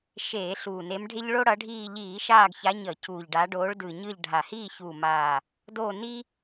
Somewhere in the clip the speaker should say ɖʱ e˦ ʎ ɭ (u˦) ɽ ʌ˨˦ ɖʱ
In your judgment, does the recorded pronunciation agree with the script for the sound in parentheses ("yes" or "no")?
no